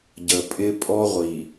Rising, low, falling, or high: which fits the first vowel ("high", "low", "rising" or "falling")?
low